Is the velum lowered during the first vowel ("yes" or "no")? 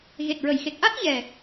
no